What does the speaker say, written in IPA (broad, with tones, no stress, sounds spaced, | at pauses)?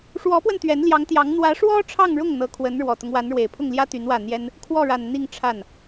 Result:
ʂ w ɔ˧˥ p w ə˧ n t̪ ɥ ɛ˧˥ n l j ɑ˧˥ ŋ t̪ j ɑ˧˥ ŋ n̪ w ä˧˥ ʂ w ɔ˥ ʈ͡ʂʰ ɑ˥˧ ŋ ɻ ʊ˥˩ ŋ n̪ ɤ˧˥ kʰ w ə˧˥ n ɻ w ɔ˨˩ t̪ ʊ˦ ŋ w a˧˥ n ɻ w e˨˩ ɪ̯ pʰ ʊ˥˩ ŋ l j ä˥ t̪ y˧˥ n w ä˥˩ n̪ j ɛ˥ n | kʰ w ɔ˥˩ ɻ a˨˩ n n̪ i˥˧ ŋ ʈ͡ʂʰ a˥˩ n